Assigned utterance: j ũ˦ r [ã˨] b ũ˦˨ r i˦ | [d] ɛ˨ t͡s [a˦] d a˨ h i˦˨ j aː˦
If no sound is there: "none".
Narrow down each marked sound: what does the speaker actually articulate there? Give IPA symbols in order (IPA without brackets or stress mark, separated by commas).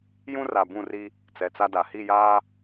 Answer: a˨, t͡s, a˦